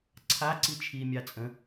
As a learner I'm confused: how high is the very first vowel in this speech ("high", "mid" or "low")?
low